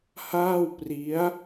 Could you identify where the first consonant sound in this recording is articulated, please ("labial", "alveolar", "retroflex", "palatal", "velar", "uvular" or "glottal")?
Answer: glottal